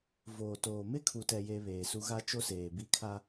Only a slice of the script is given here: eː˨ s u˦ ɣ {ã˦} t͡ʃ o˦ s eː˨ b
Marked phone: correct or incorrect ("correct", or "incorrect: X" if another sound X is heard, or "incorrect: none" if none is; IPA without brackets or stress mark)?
incorrect: a˦